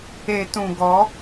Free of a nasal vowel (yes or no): no